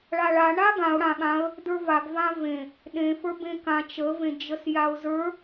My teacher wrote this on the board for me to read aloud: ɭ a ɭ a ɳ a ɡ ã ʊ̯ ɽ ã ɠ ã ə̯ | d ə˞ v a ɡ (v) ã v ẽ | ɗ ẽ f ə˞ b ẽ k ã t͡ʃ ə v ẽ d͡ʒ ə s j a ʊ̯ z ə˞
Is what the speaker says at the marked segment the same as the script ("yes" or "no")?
yes